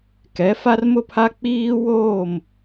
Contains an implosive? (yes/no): no